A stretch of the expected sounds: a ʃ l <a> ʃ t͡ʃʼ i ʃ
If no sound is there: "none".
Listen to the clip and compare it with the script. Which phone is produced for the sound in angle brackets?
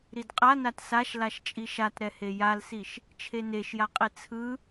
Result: a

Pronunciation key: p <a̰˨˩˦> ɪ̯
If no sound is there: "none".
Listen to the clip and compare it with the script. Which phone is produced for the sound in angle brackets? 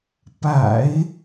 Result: a̰˨˩˦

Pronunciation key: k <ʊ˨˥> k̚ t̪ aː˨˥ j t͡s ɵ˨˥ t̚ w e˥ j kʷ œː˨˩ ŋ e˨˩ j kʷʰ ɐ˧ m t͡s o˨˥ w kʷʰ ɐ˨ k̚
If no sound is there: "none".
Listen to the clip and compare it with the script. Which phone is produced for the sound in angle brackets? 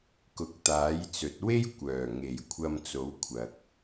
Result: ʊ˨˥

